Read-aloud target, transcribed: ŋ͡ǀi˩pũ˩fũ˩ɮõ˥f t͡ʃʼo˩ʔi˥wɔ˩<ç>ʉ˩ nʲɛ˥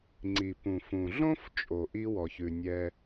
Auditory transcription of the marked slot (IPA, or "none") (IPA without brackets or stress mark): ç